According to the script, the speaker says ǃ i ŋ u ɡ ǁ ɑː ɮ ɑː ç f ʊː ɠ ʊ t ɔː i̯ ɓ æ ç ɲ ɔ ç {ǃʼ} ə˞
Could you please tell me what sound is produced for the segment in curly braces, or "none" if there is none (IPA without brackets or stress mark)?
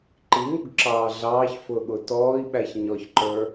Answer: ǃ